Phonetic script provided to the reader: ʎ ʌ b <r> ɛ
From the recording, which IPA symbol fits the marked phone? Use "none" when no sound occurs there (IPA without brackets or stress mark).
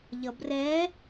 r